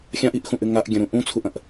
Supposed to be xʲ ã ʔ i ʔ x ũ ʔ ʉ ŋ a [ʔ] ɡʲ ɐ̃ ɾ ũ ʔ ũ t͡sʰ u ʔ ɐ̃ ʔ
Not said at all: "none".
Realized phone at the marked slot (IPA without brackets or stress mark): ʔ